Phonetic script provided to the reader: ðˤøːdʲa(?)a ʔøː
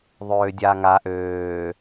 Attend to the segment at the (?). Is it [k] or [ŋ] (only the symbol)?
ŋ